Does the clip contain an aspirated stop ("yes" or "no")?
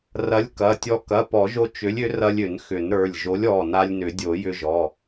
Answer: no